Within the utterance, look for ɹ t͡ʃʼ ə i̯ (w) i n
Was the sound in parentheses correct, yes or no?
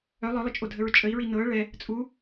no